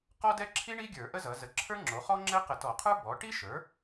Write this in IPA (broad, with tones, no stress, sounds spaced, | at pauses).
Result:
q ɔ˥ d ɛ˥ ǁʰ i˥ ɳ i˥ ɡʲ ə˞˧˩˧ ʔ ə˥ z ʌ˩˥ z ə˧˩˧ ǁʰ ə˞˥ ŋ͡ǁ o˩˥ χ ɔ˥ ŋ͡ǁ ɛ˥ q ə˧˩˧ t ɔ˧˩˧ qʰ ə˞˥ b ɔ˩˥ ʈ i˥ ʃ ə˞˩˥